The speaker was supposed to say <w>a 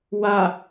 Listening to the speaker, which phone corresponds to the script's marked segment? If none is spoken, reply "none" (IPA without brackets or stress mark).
w